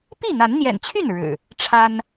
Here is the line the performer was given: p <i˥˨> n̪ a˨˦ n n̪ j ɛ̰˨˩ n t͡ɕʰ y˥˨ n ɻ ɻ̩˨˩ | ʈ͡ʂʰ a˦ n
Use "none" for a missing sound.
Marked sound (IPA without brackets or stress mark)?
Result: i˥˨